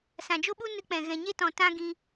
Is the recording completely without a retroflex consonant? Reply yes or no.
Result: yes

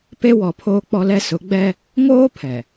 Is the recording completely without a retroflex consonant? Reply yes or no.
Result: yes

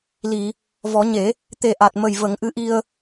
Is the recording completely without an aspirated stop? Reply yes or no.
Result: yes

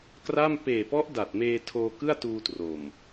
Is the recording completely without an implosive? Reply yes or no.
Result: yes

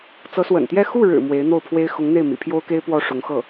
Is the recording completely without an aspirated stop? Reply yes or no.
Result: no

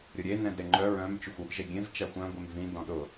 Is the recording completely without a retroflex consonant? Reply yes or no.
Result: yes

